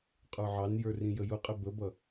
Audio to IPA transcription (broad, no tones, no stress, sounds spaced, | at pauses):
qʼ ə˞ ʕ ɑ n j ə˞ r ĩ j ə j ʊ qʼ ɪ b ə b ʌ